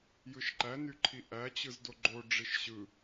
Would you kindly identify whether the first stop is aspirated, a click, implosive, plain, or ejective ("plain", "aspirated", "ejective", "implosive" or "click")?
click